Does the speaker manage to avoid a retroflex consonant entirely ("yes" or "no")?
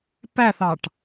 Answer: no